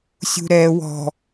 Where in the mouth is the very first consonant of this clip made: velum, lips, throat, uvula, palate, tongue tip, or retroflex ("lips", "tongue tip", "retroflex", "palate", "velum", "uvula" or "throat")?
tongue tip